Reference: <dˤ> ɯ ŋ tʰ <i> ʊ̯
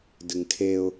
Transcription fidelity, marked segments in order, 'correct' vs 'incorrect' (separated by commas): incorrect, incorrect